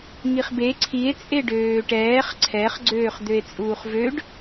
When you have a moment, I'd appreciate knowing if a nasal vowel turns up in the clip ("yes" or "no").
no